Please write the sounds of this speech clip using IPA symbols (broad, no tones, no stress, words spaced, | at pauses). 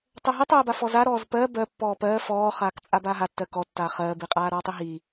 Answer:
tˤɜɦitˤɜːba fɔzaɾɔːz pɜ bɜ pːɔːpɜː fɔːχaːk t͡sʼabaːɦatːɜ kɔ tːaːχɜːbiqʼaː ɾɔːtˤiɦi